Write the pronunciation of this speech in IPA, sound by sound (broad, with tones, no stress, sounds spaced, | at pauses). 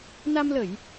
n a˧ m l ə˧˩˨ j